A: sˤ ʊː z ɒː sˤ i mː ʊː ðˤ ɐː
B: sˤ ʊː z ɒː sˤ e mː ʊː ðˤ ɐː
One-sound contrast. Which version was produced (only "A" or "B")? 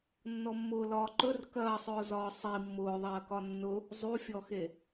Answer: A